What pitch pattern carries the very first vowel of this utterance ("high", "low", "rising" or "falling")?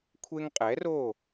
high